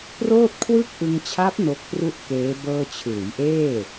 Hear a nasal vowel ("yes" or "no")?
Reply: no